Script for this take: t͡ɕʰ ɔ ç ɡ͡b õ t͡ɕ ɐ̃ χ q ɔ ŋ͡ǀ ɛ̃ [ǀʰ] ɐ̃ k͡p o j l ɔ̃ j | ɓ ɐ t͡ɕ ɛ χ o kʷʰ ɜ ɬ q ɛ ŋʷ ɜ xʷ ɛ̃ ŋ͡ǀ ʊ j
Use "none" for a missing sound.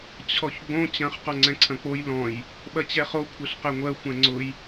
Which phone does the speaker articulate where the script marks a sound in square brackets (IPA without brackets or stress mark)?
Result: ǀʰ